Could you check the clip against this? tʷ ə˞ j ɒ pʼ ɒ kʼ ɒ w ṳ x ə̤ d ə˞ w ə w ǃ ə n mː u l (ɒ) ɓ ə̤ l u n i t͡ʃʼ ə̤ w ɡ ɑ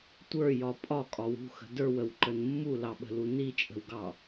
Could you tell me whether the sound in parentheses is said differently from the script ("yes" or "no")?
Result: yes